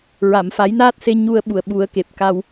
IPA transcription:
ɹ a˨˩˨ m f a˨˩˦ j n aː˦˥ t̚ s e˧ ɲ u˧ ə̯ ɓ u˨˩ ə̯ ɓ u˨˩˦ ə̯ k e˨˩ p̚ k a˧ w

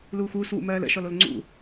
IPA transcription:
l uː xʷ uː s w ṵ m ɜː l ə̰ ʃ ɔ l o l ŋ͡ǀ ṵ

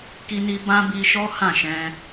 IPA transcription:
k i˦ n i˦ b ã˦ b i˧ ʃ ɔ˦ h ã˦˨ ʃ ɛ̃˧

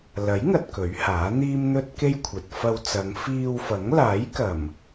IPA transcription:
l ɐ˨˥ j ŋ ɐ˨ t̚ k ɵ˨˥ ɥ h aː˨˥ n̪ iː˥ m n̪ ɵ˥ t̚ k e˥ j kʷʰ ɐ˨ t̚ f ɐ˧ w t͡s ɐ˨˧ ŋ f iː˧ w f ɐ˨˥ ŋ l aː˨˥ j k ɐ˨˩ m

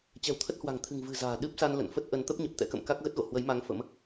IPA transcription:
t͡ɕ ɛ̤˨˩ w t̪ʰ ə˦˥ t̚ h w a̤˨˩ ŋ t̪ʰ ɨ̤˨˩ ŋ v ɨ̤˨˩ z a̤ː˨˩ ɗ ɨ˦˥ p̚ s a˧ n l ə̰˧˨ n f ə˦˥ t̚ ʔ ə˨˦ n t̪ ə˦˥ p̚ ɲ ə˨˩ p̚ t̪ ɛ̰˧˥ k ə̰˧˨ m k a˦˥ k̚ ɣ ə˦˥ t̚ ɣ o̰˧˨ h w ə˨˦ j m a˨˦ ŋ f ə̰˧˥ m

